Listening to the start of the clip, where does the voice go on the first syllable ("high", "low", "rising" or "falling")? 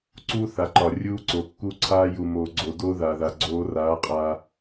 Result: high